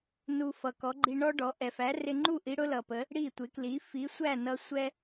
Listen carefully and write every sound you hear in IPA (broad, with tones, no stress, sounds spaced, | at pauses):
n u˧ f ʌ˩ k ɔ˩˥ ɡ͡ǃ i˧ ɳ ɔ˥ ɖ ɔ˩˥ ʔ ɛ˩ f æ˩˥ r ɪ˧ ŋ͡ǃ u˥˩ ʔ i˥ ɽ ʊ˥ l ʌ˩ p ə˩˥ | ɽ i˥˩ tʷ ɪ˩˥ k l i˩˥ f i˩˥ sʷ æ˥˩ n ʌ˧ sʷ ɛ˥